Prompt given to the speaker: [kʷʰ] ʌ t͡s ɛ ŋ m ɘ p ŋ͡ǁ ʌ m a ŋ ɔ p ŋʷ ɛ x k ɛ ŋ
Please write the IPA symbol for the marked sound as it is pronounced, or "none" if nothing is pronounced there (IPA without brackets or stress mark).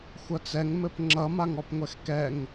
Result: xʷ